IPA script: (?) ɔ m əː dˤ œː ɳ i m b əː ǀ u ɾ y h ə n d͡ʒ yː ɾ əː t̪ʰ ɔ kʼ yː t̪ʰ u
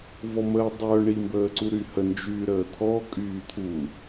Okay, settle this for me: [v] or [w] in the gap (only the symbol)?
v